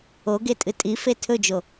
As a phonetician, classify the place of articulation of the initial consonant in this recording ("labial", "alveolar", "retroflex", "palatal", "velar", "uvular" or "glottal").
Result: velar